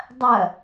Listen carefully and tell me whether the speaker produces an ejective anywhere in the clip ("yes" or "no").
no